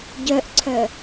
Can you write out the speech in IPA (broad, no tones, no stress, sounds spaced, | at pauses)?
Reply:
ɟ œ ʔ ǀʰ œ